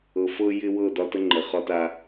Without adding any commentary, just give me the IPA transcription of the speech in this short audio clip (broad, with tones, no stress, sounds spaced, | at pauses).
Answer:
ɤ˨ f ɤ˦ j ɪ˦ w ɤ˦˨ d ɒ˦ t ə˦ ŋ͡ǃ ə˨ χ ɒ˦ t a˦